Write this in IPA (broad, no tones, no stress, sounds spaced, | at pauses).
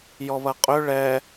j ɔ β ɐ qʼ ø ɭ ɛ